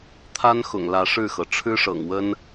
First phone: t̪ʰ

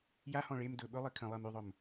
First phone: j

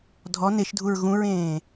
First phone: dʱ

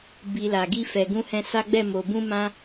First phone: b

